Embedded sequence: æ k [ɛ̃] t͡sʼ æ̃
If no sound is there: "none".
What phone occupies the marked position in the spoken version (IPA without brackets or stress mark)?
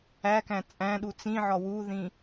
æ̃